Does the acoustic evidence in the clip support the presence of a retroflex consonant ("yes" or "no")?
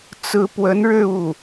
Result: yes